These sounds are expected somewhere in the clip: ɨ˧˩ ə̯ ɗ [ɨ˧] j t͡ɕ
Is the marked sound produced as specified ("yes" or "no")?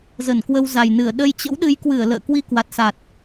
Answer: no